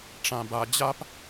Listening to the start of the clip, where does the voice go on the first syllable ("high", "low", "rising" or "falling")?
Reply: low